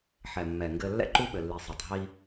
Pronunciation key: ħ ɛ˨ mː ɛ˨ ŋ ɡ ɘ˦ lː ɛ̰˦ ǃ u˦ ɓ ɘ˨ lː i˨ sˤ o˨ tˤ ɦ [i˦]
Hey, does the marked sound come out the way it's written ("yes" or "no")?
yes